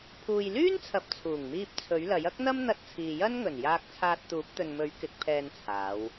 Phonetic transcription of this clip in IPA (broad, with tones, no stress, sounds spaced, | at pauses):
pʰ uː˨ j l yː˥ n t͡sʰ ɐ˨ p̚ t͡sʰ uː˨˩ ŋ m iː˧ p̚ t͡sʰ ɵ˨˥ ɥ l ɐ˨˥ j ɐ˥ k̚ n̪ ɐ˥ m n̪ ɐ˧ t̚ t͡sʰ iː˨ j ɐ˥ n ŋ ɵ˨˩ n j aː˧ k̚ t͡sʰ aː˧ t̚ t̪ uː˨˥ p̚ t̪ ɵ˨ n m ɵ˨˥ ɥ k ɪ˨˥ k̚ pʰ ɛː˧ n t͡sʰ aː˨˧ w